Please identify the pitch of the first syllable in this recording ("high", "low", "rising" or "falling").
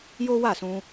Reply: high